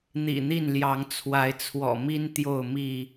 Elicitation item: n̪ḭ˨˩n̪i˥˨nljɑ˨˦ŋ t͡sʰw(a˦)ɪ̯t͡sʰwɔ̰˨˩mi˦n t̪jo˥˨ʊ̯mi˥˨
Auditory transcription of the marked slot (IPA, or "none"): a˨˦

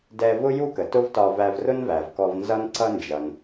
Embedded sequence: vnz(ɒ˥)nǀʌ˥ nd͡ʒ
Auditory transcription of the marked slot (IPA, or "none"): ʌ˥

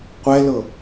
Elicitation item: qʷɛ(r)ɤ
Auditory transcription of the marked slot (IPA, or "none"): l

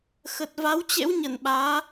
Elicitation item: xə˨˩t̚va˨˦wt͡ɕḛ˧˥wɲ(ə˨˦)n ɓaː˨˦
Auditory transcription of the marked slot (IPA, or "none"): ə˧˩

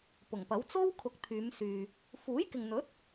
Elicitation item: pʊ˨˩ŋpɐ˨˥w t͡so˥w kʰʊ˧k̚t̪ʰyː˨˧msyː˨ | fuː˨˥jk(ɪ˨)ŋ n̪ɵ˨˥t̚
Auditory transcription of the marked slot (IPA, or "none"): ɪ˨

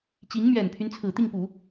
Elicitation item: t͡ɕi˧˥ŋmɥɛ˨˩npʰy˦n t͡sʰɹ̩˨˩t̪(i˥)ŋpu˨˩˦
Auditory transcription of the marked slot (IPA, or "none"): i˥˩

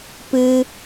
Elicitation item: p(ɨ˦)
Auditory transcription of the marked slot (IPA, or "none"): ɨ˦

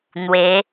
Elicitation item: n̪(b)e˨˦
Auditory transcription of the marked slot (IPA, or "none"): w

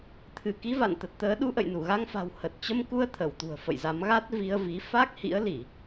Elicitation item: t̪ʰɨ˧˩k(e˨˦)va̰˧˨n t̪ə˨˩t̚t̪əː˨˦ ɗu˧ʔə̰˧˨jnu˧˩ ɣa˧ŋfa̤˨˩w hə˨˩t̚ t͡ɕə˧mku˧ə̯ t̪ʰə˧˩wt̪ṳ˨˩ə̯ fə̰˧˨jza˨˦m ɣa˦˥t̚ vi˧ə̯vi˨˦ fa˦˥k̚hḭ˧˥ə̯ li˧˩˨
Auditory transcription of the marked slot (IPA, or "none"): i˨˦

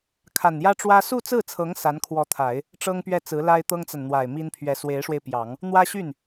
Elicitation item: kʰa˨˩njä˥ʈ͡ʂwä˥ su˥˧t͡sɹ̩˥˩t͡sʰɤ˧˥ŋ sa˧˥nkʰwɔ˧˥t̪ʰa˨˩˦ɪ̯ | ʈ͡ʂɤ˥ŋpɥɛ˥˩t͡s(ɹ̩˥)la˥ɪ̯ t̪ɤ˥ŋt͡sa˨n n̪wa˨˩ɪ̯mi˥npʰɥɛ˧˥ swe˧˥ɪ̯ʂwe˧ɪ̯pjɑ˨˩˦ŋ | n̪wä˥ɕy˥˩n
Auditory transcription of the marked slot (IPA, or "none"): ɹ̩˧˥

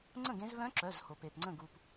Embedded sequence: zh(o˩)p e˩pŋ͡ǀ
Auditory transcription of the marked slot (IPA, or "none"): o˩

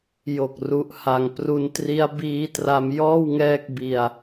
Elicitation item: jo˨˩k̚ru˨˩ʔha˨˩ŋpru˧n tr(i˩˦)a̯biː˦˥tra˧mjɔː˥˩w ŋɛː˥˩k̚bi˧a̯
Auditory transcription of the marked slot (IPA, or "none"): i˦˥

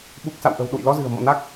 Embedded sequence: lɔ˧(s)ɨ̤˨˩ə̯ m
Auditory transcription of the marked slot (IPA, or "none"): z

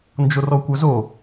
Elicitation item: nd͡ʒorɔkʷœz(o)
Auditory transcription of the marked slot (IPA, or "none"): o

